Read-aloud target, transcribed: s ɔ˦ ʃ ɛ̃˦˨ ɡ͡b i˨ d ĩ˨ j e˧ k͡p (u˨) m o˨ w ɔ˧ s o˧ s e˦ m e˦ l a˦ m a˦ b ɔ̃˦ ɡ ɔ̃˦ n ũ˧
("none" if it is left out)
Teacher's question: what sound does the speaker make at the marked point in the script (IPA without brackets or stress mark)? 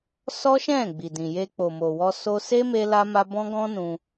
o˨